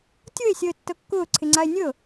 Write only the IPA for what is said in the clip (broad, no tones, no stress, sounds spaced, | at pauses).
tʲ ʊ e̯ sʲ əː tː ɤ kː ʊː ǀʰ ɪ ŋ͡ǀ a e̯ nʲ ɤ